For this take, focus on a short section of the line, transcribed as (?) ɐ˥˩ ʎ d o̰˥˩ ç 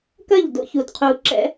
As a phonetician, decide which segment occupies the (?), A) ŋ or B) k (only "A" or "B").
B